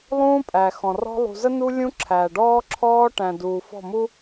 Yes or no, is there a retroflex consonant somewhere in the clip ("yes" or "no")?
yes